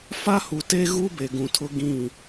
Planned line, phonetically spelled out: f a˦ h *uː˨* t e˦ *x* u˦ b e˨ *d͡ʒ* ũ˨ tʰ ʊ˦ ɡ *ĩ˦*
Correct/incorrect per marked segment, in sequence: incorrect: u˨, incorrect: ɣ, incorrect: ɡ, incorrect: ĩ˦˨

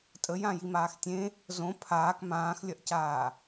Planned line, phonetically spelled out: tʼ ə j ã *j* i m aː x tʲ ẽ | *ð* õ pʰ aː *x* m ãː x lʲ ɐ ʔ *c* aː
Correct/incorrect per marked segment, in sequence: correct, incorrect: z, incorrect: k, correct

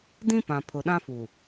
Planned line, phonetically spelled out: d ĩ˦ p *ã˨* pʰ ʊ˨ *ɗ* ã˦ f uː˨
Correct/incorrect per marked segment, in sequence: correct, correct

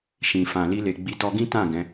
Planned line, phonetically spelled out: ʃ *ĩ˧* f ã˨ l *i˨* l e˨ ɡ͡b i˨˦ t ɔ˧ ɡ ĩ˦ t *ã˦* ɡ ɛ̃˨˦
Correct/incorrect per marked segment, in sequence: incorrect: ĩ˨, incorrect: i˧, incorrect: ã˦˨

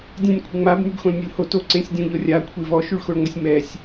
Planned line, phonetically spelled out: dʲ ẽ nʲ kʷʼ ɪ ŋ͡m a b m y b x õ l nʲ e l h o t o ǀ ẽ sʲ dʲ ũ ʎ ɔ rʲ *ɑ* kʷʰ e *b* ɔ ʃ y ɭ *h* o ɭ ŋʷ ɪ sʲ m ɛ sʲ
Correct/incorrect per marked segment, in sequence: incorrect: a, incorrect: v, incorrect: x

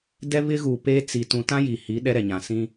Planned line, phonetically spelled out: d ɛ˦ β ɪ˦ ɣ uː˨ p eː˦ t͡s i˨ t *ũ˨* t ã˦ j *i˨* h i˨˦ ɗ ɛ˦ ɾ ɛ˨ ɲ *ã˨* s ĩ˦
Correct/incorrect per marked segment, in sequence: correct, correct, correct

